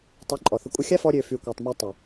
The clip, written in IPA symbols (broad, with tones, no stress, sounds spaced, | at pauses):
tˤ y˨˦ ǃʼ ɔ˨ θ ə˧ kʷʼ ə˧ xʲ a˦ f ɔ˦ ɾʲ ø˧ f y˨ kʷ a˨ tˤ m æ˧ tˤ ɛ˨